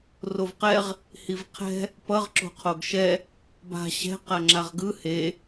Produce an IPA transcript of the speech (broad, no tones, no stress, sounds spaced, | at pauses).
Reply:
r o v q ɛ ʁ | h i v qʰ ɛ̤ | p ʌ ʁ ǁ o̤ qʰ o ɡ ʃ ɛ | b a̤ ɕ ɛ̤ q a ŋ͡ǁ a ʁ ɡ ɯ h e